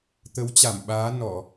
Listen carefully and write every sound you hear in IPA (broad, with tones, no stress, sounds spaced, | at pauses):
t̪ ə˨˦ w t͡ɕ a˧˩ m ɓ aː˨˦ n ɔ˧˩˨